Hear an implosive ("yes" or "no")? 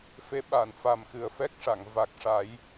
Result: yes